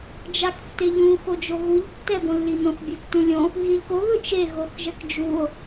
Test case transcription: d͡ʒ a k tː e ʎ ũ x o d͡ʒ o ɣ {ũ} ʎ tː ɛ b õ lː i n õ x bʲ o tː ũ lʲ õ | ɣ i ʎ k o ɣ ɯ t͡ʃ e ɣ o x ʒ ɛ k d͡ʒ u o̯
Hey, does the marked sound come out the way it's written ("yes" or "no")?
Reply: no